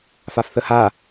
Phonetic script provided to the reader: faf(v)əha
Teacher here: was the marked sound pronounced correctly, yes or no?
no